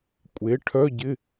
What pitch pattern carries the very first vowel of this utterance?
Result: rising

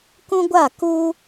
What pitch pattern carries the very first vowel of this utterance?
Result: high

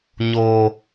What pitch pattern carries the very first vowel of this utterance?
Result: low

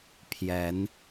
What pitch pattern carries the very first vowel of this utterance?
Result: rising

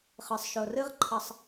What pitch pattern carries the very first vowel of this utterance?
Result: low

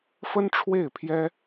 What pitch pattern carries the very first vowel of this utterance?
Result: high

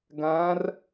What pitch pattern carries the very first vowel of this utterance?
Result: rising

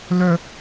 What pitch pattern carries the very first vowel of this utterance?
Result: high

